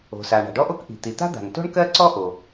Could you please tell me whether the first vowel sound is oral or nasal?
oral